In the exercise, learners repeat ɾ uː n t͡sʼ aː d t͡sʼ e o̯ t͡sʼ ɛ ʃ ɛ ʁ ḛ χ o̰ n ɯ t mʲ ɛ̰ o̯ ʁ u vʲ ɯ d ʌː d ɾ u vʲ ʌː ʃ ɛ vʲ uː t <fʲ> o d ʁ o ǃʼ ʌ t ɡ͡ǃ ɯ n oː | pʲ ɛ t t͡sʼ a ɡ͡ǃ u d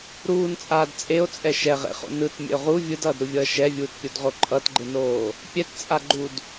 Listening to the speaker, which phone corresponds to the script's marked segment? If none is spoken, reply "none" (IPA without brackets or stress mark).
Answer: pʲ